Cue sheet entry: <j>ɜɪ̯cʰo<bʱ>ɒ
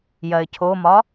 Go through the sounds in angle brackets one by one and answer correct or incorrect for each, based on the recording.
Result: correct, incorrect

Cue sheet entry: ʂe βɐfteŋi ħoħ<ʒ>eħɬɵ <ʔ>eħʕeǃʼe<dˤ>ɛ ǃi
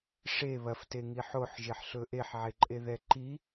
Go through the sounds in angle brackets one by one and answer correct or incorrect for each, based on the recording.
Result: correct, correct, incorrect

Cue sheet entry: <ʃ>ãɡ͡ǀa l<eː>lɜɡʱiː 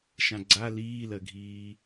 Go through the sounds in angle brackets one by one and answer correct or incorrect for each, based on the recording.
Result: correct, incorrect

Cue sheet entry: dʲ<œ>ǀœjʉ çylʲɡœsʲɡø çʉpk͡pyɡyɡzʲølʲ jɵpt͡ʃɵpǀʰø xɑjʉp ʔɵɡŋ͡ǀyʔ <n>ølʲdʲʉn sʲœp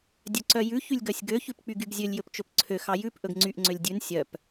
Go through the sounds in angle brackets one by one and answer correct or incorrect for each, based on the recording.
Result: correct, incorrect

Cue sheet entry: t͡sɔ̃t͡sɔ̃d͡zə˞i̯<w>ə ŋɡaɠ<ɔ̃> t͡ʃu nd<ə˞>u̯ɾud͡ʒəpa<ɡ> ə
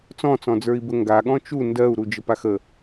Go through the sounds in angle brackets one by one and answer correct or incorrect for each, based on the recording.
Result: incorrect, correct, incorrect, incorrect

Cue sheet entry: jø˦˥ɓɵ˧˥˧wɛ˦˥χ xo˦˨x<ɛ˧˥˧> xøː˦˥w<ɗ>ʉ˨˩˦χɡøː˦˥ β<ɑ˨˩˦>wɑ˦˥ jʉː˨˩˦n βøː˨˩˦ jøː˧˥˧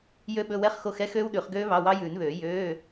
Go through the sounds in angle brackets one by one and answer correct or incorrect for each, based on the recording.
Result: correct, correct, incorrect

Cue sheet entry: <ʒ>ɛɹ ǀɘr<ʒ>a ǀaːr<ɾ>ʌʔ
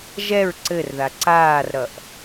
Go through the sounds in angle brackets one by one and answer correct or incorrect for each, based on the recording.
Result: correct, incorrect, correct

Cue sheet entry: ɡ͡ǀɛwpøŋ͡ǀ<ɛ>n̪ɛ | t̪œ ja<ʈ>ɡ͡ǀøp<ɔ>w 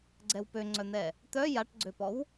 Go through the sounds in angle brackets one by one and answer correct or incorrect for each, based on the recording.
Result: incorrect, correct, correct

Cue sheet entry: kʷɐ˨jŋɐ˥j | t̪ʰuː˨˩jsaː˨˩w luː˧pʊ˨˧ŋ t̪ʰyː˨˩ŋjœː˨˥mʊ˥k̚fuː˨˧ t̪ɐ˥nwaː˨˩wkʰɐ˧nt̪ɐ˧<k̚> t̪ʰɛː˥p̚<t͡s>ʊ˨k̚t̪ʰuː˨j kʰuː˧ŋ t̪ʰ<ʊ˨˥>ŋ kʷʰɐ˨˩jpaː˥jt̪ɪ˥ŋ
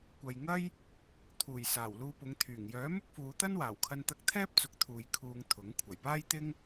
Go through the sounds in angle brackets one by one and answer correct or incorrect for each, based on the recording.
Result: correct, correct, correct

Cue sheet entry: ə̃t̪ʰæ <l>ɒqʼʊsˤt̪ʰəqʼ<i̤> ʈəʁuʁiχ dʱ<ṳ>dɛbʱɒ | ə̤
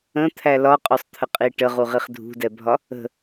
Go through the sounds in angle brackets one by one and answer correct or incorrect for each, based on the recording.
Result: correct, incorrect, correct

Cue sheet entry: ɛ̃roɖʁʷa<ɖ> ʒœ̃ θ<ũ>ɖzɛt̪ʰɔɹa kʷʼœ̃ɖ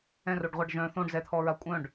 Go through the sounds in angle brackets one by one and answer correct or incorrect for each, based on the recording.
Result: correct, incorrect

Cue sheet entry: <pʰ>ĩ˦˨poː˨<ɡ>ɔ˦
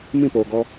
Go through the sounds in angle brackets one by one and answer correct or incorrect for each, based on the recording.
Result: incorrect, correct

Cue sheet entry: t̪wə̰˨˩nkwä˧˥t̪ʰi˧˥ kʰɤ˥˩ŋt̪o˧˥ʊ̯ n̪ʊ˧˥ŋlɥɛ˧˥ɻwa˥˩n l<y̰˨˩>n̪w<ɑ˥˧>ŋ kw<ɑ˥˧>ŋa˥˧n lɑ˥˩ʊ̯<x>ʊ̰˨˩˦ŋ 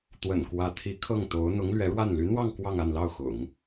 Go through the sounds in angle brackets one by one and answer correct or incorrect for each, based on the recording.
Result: incorrect, correct, correct, correct

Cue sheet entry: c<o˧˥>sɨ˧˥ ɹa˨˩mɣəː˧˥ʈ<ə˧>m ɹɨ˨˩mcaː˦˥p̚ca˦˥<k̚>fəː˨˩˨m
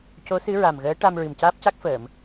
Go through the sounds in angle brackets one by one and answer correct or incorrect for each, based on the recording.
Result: correct, incorrect, correct

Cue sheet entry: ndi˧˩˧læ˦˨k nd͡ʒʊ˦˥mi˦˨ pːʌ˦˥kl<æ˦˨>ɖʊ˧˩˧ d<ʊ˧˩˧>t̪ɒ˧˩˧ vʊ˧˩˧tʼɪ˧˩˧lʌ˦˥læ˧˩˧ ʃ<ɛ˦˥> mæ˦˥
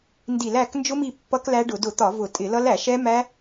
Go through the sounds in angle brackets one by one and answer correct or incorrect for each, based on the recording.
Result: incorrect, correct, correct

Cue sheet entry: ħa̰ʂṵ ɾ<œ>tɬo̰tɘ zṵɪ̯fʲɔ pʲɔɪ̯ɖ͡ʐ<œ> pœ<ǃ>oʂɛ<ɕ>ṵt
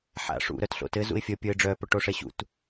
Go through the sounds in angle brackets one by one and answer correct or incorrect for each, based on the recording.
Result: correct, correct, incorrect, correct

